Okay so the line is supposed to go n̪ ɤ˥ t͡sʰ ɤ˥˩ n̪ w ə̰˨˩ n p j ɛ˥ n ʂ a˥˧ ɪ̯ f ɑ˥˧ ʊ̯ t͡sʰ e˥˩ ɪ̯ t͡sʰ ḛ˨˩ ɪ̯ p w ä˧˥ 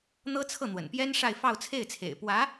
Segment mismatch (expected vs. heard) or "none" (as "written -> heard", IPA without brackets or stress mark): none